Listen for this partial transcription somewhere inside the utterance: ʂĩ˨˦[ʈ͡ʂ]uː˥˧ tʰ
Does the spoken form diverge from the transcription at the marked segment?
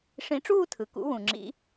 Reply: no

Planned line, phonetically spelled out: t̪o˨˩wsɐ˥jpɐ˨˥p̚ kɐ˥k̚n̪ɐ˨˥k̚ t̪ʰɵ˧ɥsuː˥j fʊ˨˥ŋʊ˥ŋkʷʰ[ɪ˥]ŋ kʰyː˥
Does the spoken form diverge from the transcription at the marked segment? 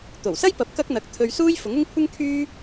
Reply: no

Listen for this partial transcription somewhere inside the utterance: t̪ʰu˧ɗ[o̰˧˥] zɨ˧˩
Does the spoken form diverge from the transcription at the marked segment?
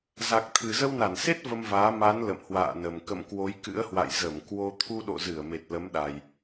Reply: yes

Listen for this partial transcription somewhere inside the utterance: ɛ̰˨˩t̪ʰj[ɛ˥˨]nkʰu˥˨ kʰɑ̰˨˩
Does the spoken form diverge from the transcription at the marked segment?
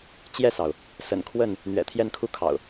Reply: no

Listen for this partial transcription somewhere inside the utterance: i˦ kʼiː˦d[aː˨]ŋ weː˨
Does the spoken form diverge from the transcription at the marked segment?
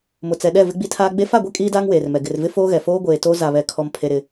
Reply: yes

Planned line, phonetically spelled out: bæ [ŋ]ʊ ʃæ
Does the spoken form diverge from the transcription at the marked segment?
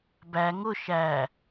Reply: no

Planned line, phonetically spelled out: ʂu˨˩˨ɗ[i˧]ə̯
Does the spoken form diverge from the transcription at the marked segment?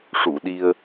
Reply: no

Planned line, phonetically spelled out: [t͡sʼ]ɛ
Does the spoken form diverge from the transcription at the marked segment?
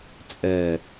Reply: no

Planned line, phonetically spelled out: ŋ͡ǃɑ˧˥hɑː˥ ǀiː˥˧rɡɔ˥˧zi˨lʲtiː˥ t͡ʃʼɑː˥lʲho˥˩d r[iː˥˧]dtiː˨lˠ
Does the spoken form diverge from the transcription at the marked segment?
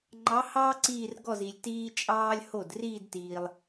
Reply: no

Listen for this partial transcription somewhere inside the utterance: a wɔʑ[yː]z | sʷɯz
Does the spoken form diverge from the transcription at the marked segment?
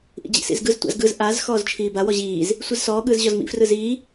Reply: yes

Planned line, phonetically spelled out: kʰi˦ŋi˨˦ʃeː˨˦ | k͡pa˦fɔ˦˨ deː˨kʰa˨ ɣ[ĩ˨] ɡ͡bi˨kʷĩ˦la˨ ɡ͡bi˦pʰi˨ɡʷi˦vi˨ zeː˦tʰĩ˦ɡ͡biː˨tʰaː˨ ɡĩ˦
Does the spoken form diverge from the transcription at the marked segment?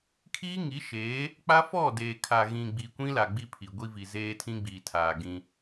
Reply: no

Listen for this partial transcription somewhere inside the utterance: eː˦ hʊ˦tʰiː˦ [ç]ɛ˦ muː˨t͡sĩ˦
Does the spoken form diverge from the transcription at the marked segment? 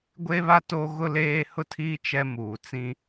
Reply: yes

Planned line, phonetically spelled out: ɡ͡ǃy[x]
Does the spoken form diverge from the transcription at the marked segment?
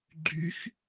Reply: no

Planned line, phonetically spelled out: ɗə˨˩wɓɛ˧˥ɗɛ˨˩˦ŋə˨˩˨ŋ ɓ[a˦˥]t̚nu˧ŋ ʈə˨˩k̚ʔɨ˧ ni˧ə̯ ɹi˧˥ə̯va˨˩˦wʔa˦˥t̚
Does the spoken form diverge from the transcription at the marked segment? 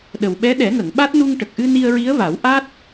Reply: no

